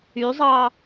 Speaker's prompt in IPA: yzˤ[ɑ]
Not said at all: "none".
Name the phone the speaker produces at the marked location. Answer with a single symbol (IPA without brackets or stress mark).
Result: ɑ